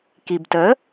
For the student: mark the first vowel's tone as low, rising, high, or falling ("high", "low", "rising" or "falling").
low